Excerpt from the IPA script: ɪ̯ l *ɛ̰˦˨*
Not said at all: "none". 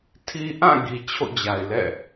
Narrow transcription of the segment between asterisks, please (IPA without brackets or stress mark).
ɛ̰˦˨